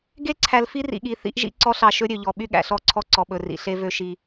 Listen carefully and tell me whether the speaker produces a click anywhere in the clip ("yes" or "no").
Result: yes